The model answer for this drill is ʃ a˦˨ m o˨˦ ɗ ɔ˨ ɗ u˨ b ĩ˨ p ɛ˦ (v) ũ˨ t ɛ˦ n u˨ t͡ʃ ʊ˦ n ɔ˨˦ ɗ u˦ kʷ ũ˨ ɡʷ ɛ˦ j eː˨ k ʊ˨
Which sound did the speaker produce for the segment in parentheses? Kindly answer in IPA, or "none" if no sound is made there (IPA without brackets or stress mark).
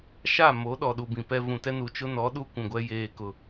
v